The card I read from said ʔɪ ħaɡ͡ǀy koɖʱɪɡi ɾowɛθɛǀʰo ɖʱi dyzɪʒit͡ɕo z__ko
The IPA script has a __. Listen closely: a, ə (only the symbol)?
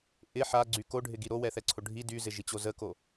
ə